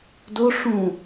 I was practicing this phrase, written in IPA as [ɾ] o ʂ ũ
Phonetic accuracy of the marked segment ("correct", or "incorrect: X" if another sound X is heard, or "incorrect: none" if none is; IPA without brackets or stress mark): incorrect: d